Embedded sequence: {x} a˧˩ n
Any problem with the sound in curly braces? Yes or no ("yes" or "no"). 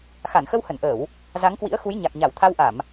no